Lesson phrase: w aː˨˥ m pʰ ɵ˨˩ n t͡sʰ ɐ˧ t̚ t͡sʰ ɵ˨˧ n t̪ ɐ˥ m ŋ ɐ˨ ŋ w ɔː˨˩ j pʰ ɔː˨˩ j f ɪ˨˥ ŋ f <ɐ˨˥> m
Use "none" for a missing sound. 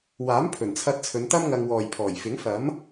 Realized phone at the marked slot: ɐ˨˥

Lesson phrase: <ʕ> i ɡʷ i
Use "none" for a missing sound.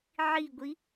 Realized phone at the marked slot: ʕ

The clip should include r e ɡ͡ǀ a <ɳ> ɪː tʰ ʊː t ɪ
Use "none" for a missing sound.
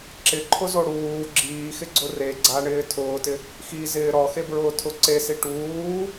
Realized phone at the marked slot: ɳ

